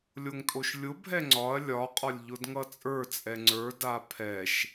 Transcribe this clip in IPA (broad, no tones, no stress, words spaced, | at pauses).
lʲoŋtʼoʃlʲʊbʱɛ ŋ͡ǀɒɐ̯ lʲɒqʼɒlʲ ʎʊdŋʌt͡sʼə˞t͡sʼɛ ŋ͡ǀə˞da pʰɛʃ